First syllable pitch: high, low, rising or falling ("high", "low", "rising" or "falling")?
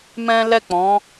high